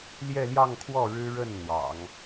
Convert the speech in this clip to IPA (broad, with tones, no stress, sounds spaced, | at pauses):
l j ɛ˥˧ l j ɑ˥˧ ŋ kʰ w ɔ˥˩ ɻ ɻ̩˥ ɻ ə˥˩ n n̪ w ɑ̰˨˩˦ ŋ